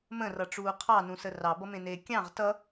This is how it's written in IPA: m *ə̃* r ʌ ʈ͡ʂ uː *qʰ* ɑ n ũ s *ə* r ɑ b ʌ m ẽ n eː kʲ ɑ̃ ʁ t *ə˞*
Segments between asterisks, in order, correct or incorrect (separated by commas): correct, correct, correct, incorrect